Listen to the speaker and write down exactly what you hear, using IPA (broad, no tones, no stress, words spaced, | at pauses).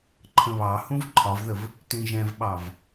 ǃʰə̃βɑhũv ǃʰɒvðəv | tĩʒɛ̃vɓɑv